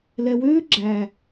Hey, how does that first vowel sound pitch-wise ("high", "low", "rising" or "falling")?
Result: low